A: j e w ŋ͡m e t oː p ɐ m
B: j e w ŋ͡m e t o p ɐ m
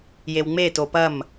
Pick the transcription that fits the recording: B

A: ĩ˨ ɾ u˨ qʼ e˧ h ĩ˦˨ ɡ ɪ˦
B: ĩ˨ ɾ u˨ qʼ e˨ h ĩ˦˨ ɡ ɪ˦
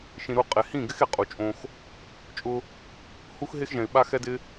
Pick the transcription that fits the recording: B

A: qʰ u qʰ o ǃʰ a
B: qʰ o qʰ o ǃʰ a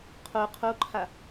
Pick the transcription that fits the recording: B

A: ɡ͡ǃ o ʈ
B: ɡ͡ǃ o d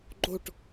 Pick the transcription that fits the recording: A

